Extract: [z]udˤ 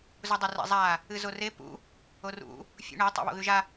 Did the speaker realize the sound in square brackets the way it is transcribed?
yes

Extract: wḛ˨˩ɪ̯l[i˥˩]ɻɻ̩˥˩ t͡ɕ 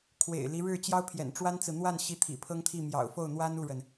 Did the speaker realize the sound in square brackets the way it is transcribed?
no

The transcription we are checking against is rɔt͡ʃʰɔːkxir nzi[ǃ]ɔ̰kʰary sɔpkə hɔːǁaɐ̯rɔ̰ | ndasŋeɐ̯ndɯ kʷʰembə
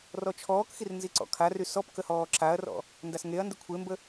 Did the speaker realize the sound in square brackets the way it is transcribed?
no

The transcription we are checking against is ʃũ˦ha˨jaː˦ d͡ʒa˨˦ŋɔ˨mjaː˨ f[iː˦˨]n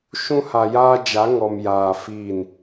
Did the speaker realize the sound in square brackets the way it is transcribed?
yes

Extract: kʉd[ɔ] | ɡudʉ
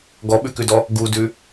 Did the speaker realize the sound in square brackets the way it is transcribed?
yes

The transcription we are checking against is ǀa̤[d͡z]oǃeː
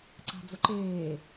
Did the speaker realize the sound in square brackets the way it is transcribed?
yes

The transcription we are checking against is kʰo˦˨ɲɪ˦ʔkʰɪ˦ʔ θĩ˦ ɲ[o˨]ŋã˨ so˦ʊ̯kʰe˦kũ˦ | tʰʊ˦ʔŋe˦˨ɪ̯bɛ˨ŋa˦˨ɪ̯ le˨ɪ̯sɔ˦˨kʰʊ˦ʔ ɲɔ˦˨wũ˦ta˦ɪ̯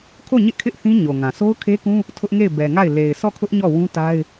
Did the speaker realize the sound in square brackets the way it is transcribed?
yes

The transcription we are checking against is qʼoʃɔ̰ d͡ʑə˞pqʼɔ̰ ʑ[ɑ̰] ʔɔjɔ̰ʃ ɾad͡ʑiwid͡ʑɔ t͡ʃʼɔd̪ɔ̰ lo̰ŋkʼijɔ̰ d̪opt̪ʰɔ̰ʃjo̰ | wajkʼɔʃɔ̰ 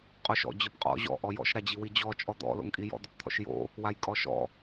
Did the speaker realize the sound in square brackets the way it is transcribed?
no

